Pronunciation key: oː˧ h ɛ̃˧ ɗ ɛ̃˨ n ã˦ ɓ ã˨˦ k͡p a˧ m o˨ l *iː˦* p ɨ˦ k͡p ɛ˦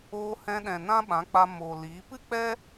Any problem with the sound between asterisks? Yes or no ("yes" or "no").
yes